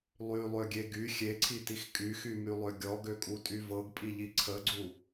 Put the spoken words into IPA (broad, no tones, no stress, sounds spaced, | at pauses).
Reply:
lˠ y lˠ ø ɡʲ e ɡ y xʲ e ǀʰ i t i x kʼ y x y m y lˠ ø ɡʲ ɔ ɡ ø kʼ u tʼ y v ɤ ɡ pʼ i ʎ i ǀʰ ə ɡ͡ǀ u